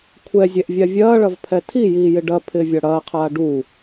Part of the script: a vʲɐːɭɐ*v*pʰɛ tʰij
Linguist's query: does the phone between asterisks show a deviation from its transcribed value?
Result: no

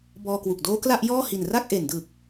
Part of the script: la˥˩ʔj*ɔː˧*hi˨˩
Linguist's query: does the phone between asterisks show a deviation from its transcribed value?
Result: yes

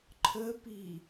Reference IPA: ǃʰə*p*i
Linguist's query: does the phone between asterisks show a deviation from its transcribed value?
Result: no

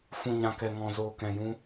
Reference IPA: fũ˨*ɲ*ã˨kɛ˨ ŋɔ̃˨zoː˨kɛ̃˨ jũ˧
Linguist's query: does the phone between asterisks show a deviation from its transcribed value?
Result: no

